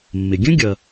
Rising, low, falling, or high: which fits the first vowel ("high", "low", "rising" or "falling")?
low